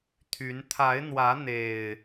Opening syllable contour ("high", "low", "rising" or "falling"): rising